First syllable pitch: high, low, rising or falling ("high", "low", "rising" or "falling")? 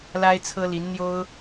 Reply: high